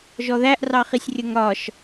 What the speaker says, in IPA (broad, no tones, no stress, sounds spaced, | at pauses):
ʒ ɔ ð æ ʔ r ɑ χ i sʲ rʲ ə ŋ ɾ ɒ ʃ